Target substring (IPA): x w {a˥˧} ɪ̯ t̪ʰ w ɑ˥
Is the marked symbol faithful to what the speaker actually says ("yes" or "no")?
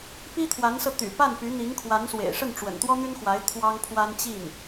no